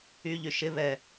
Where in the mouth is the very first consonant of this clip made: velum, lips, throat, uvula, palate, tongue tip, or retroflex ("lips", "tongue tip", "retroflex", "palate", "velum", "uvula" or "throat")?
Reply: palate